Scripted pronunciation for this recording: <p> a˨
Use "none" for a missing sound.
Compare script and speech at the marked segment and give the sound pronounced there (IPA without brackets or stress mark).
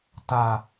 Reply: t